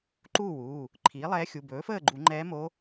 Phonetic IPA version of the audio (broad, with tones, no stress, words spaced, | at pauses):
ǃuː˥˨wuː˩˧˩ | ǃʰiː˩˥lˠɛː˧˥xʲu˩˧˩ bɵː˩˥fəː˥˨ɡ͡ǃu˨˩˦ ŋ͡ǃɛː˧˥mo˧˥